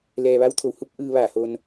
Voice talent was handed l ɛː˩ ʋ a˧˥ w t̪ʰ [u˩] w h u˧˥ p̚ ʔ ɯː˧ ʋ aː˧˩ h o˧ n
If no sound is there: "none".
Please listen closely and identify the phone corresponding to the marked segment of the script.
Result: o˩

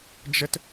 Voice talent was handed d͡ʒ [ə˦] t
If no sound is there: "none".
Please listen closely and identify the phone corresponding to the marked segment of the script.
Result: ə˦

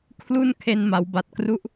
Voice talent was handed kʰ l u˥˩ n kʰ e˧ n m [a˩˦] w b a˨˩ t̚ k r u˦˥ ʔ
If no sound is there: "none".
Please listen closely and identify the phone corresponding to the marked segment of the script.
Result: a˩˦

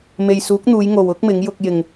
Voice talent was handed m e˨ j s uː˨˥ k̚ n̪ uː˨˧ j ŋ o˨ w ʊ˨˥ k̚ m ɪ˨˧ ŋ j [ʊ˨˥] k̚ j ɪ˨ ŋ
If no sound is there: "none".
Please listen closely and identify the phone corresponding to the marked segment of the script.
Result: ʊ˧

